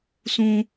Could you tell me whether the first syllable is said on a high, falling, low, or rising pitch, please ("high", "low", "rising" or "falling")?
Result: high